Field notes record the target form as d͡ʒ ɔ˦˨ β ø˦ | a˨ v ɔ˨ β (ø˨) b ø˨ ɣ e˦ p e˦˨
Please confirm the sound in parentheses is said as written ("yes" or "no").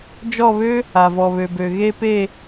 yes